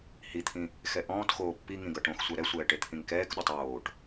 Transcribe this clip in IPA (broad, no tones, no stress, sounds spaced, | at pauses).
h i t̪ʰ ĩ | x ɛ ʔ ɔ̃ː t x oː pː i ŋ ĩ ɡ ʌ ʈ õ x sʷ ɛ ɾ ɛ sʷ ɛː ʈ e t̪ʰ ĩ ŋ k ɛː k ɗ ɔ tˤ oː ʈ